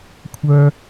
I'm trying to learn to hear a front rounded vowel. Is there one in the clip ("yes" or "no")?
yes